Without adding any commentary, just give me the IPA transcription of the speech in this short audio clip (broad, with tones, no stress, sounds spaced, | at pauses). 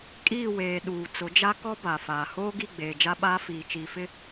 kʼ iː˦˨ w eː˨ ɗ uː˨ t͡s ʊ˨˦ d͡ʒ a˦ k ɔ˦ b a˨ f aː˨ h oː˦ ɡ i˦˨ ɡ͡b eː˨ d͡ʒ a˦ ɓ aː˦ f iː˨ t͡ʃ i˨ f ɪ˦